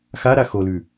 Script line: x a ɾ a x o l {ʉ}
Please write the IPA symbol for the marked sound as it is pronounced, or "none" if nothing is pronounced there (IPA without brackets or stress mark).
ʉ